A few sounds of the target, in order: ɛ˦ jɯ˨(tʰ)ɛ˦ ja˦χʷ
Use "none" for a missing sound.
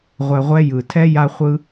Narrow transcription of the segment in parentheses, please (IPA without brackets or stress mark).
tʰ